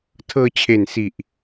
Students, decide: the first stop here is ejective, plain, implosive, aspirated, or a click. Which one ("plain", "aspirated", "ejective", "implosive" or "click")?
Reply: aspirated